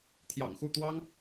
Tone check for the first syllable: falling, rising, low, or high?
low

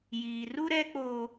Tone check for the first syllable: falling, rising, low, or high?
high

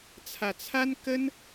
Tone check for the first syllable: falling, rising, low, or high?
low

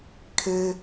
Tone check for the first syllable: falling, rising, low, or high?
high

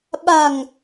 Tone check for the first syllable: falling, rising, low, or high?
low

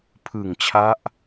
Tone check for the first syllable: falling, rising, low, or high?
low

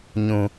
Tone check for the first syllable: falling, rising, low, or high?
low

